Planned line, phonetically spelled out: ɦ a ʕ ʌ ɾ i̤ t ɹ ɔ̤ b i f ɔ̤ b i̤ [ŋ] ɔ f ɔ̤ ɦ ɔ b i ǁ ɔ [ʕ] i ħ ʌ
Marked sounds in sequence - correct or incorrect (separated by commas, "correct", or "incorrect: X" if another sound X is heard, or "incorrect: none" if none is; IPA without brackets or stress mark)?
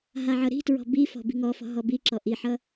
correct, incorrect: ʔ